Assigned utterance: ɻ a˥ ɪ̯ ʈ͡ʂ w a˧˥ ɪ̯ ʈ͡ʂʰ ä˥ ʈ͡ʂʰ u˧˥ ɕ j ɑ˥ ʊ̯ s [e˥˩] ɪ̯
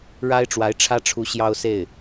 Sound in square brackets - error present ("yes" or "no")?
no